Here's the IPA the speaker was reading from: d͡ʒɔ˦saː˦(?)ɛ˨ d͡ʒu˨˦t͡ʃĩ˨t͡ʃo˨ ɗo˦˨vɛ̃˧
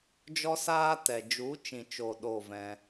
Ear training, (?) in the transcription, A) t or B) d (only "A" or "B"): A